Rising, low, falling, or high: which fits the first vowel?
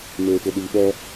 low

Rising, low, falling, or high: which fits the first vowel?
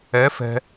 rising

